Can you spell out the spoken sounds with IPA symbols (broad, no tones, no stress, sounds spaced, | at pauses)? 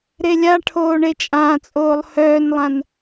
ɾ e lʲ a ʈʰ oː ɳ e t͡ʃʼ ãː t͡sʼ oː lˠ h œː n lˠ ã n